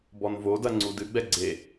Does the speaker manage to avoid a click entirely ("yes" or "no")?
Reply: no